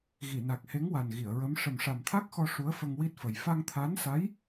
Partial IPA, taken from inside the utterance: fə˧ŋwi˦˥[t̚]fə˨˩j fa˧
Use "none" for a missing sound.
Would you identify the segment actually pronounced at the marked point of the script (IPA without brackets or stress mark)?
t̚